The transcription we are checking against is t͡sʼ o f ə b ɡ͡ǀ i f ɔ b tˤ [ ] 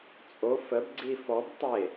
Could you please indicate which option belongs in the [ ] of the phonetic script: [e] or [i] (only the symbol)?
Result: e